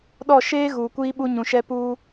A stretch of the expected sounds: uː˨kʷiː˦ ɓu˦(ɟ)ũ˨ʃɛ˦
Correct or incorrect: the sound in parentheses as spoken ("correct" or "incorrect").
incorrect